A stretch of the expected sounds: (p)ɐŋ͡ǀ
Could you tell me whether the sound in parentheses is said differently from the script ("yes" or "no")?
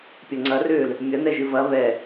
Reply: yes